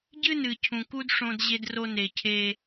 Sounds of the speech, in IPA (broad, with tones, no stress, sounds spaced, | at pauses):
ɟ ɨ˦ n ɨ˨ cʰ ũ˨ k u˦ d ʂ õ˦ d ʑ e˦ d r o˦ n e˨ cʰ e˦